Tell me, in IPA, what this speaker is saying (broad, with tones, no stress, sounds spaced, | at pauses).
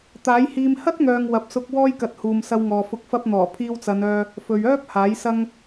t̪ aː˨˥ j h iː˧ m h ɐ˥ t̚ ŋ œː˨ ŋ w ɐ˨ p̚ s ʊ˧ k̚ w ɔː˥ j k ɐ˧ t̚ h uː˨ m s ɐ˧ w ŋ ɔː˨ f ʊ˨˥ k̚ f ɐ˧ p̚ n̪ ɔː˨˩ pʰ iː˧ w t͡s ɐ˨˧ n œː˧ | f ɵ˨ ɥ œː˥ p̚ h aː˨˥ j s ɐ˥ ŋ